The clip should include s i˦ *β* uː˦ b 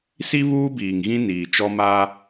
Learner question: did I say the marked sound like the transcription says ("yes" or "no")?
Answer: yes